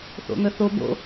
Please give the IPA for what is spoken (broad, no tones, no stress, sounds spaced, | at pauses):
θ o̰ ŋ ə θ o b o̰